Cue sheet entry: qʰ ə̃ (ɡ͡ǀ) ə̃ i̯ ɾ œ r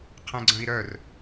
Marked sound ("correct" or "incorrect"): correct